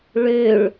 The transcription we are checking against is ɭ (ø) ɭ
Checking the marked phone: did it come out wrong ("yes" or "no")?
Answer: no